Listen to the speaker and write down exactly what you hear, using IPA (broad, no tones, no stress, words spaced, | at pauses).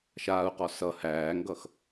ʃaːu̯qɔ sʌ hæːŋɡʌx